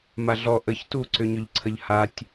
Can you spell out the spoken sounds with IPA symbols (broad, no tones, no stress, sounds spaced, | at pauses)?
m a ɮ ɔ ʔ ə ç t u ǀ ʏ ɲ ʏ ʎ ǀʰ ə ʎ h a tʲ